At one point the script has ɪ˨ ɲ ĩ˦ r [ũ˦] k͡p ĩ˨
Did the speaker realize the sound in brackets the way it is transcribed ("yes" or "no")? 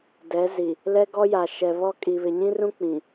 yes